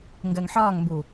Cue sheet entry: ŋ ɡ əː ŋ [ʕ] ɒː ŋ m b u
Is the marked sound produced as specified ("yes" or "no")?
no